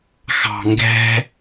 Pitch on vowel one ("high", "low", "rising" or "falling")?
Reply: low